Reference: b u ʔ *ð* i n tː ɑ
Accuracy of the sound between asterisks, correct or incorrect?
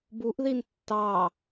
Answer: correct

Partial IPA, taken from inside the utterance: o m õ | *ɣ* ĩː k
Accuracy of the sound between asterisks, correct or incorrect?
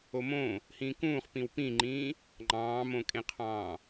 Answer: incorrect: h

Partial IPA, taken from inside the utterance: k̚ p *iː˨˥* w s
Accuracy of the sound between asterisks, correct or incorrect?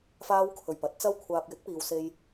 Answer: incorrect: iː˨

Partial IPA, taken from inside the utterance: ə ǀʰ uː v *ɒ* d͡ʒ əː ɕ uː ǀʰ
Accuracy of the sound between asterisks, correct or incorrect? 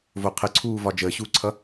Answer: correct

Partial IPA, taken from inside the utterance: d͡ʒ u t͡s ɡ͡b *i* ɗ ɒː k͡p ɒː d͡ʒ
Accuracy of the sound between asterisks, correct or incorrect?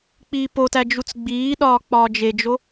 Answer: incorrect: iː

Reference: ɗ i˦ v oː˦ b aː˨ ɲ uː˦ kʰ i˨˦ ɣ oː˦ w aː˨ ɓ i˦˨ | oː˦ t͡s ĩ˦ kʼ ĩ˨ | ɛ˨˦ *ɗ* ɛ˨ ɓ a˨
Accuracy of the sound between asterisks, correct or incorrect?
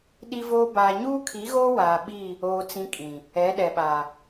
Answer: correct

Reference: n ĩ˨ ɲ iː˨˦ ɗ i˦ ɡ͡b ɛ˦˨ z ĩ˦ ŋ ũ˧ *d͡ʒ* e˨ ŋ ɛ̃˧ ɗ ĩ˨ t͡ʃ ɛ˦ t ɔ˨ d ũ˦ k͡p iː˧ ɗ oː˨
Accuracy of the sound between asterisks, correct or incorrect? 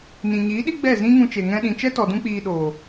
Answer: incorrect: t͡ʃ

